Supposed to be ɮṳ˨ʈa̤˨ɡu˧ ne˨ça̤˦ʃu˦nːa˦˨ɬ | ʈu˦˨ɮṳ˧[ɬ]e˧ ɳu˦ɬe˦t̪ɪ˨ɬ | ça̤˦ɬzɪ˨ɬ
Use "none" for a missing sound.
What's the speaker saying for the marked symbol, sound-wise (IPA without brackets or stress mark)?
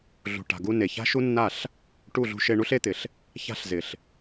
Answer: ʃ